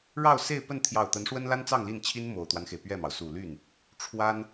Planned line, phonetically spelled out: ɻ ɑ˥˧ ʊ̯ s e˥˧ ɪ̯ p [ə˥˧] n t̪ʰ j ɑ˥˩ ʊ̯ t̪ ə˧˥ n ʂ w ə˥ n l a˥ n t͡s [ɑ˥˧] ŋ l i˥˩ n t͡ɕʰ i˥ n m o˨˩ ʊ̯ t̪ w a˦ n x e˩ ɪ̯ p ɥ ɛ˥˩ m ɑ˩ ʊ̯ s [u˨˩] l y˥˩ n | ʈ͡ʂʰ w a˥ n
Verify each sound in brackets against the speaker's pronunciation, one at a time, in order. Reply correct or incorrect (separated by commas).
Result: correct, correct, correct